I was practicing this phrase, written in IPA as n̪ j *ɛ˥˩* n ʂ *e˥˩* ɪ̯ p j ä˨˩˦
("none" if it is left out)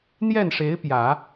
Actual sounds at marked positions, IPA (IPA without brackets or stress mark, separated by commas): ɛ˥˩, e˧˥